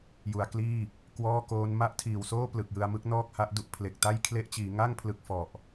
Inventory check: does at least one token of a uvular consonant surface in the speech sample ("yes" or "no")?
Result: no